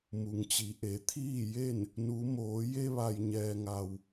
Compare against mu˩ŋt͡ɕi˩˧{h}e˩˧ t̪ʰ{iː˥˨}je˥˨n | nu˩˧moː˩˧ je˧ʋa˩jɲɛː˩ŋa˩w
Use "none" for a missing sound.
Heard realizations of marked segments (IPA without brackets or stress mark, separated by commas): ʔ, iː˥˨